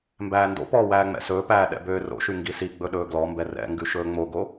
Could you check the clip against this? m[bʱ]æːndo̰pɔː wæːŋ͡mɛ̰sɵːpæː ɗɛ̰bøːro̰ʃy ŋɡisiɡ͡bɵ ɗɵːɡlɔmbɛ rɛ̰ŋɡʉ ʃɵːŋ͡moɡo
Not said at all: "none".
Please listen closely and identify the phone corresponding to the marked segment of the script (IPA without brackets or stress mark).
b